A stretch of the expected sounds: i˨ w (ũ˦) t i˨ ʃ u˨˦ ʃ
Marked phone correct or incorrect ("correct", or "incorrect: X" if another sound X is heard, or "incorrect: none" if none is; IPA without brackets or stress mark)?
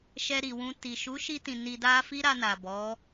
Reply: incorrect: ũ˧